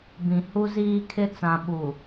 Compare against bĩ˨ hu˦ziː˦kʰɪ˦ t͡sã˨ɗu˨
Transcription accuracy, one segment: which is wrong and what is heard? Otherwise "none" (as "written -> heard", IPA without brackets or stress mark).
ɗ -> ɓ